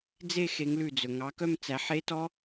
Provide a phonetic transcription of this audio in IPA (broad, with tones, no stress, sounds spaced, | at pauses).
d͡z e˥˧ x e˨˦ ŋ l ʉ˧˩ d͡z ɵ˩ ŋ ɑ˨˦ k œ˥˧ m t͡s æ˨˦ ħ e˦˥ t ɔ˦˥